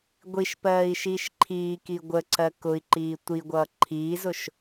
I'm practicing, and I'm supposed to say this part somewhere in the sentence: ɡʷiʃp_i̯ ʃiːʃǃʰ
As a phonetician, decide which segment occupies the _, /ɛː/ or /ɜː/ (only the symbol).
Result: ɜː